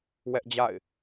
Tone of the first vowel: high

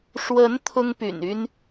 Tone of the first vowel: rising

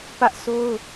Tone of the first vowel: high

